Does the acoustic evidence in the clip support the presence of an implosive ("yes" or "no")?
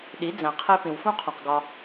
yes